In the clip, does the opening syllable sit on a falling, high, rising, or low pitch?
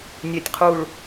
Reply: low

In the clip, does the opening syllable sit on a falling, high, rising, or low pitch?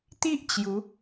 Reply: high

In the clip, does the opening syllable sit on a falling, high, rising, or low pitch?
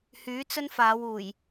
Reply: rising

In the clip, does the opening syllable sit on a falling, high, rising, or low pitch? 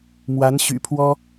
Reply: rising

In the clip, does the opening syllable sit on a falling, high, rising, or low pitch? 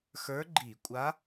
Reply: rising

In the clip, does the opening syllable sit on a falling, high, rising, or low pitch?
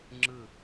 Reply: falling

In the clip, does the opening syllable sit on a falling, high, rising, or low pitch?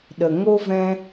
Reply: low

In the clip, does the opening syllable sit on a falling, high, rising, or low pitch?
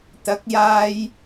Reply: rising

